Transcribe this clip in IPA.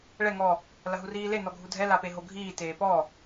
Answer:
ɭ ɛ ŋ ɔ | l ɐ ɦ u r iː l e n ɔ ɡʱ u dʱ ɛ l a p e ɦ o ɡʱ iː t eː p ɔ

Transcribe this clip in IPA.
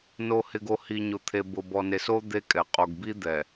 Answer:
n o˨ h ɪ˨ ɡ o˨ h i˨ ɲ ʊ˨ t̪ʰ e˨ b ʊ˨ b ɔ˨ n e˨ s o˦ d̪ e˦ kʼ ɛ˨ qʼ o˨ ɡ b i˦ d̪ ɛ˨

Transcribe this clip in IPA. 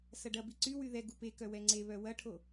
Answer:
s ɐ ɖ ɐ b i ǀ y w y ð ɛ ɡ u p e k œ w ɛ ŋ͡ǀ e β œ w ɐ ʈʰ o

